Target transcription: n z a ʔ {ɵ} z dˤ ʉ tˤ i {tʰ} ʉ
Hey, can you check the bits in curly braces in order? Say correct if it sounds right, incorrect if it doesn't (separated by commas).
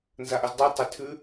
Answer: correct, correct